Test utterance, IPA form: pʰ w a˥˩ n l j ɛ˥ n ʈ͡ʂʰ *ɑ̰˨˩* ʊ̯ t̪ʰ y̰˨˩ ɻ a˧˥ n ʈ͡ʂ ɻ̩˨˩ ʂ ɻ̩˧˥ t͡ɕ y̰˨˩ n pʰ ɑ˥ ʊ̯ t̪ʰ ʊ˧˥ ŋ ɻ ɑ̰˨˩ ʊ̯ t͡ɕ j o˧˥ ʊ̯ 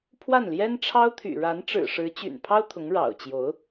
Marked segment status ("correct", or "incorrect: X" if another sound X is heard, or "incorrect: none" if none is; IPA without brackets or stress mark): incorrect: ɑ˥